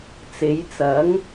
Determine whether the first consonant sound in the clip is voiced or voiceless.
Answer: voiceless